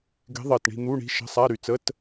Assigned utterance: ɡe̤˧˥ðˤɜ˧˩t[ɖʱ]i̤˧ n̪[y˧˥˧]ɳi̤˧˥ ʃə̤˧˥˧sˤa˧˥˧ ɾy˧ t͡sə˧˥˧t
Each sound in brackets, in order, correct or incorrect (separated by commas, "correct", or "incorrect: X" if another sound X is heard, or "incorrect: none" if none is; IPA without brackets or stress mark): incorrect: ɳ, incorrect: u˧˥˧